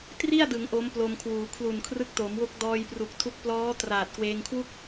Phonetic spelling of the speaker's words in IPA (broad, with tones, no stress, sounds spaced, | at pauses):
t r i˥˩ a̯ d ɯ˩˦ ŋ ʔ o˦˥ m p l o˧ m kʰ w uː˩˦ kʰ l u˨˩ n kʰ r ɯ˦˥ k̚ t o˩˦ m w o˦˥ k̚ d ɔː˧ j p r u˨˩ k̚ tʰ u˦˥ k̚ p l ɔː˦˥ t r aː˨˩ t̚ k w eː˧ ŋ kʰ w u˥˩ k̚